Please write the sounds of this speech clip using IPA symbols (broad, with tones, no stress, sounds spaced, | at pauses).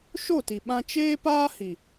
ʃ o˦˨ t i˨ ɓ ã˧ t͡ʃ eː˦ p aː˦ h i˨